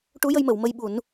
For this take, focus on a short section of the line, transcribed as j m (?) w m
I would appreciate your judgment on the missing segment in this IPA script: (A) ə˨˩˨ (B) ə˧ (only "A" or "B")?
A